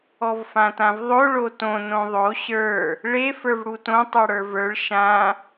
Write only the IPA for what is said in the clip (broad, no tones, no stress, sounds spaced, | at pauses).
ɔ v f ã t ã v ðˤ o ɭ o t õ n õ ðˤ o ɕ ə˞ | ɭ e f ə˞ v ɽ u t õ tˤ ə˞ ɽ ə˞ v ə˞ ɭ ʃ ã